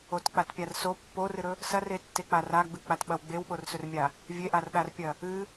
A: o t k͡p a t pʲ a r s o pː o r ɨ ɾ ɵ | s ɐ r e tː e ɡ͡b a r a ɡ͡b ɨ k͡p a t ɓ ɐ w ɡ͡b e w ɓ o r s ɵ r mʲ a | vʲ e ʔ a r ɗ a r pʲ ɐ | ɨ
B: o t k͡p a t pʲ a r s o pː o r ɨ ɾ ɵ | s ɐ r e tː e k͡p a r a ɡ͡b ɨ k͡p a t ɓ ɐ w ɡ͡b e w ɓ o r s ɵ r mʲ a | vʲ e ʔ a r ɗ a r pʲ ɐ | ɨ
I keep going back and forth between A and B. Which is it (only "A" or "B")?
B